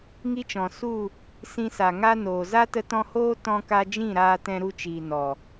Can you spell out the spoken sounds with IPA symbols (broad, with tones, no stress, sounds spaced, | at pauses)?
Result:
ŋ i˦ t͡ʃ ɔ̃˨ s u˦˨ | s ĩ˧ s a˨ ŋ a˦ n oː˨ z a˦ t ə˧ t ɔ̃˧ h oː˦ t ɔ̃˦ k a˦ d͡ʒ ĩ˦˨ ɾ aː˧ t ɛ̃˧ ɾ u˧ t͡ʃ iː˨ n ɔ˨